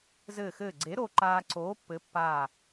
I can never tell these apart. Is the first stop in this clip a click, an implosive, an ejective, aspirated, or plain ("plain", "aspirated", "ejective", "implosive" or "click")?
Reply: click